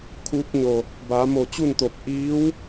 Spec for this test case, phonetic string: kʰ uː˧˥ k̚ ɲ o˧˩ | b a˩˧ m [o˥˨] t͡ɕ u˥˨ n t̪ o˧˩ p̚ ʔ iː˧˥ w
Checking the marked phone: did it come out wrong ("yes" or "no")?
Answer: yes